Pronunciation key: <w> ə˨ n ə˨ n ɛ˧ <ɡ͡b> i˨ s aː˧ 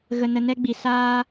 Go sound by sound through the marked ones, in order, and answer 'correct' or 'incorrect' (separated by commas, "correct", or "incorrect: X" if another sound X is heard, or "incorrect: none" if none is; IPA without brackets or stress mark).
incorrect: ɣ, correct